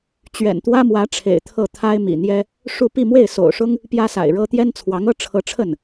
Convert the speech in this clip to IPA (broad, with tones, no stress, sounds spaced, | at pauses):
t͡ɕ ɥ ɛ̰˨˩ n t̪ w ä˥ m w ä˧˥ ʈ͡ʂʰ ḛ˨˩ ɪ̯ t̪ʰ ɤ˥˩ t̪ʰ a˥ ɪ̯ m ḭ˨˩ n̪ j ɛ˥ | ʂ u˥˧ p i˥˧ m w e˥˩ ɪ̯ s o̰˨˩ ʊ̯ ʂ ʊ˥ ŋ | p j ä˥ s a̰˨˩ ɪ̯ ɻ ɤ˥ t̪ j ɛ˥ n t͡sʰ w ɑ˧˥ ŋ ɤ˥ ʈ͡ʂʰ ɤ˧˥ ʈ͡ʂʰ ə˥˩ n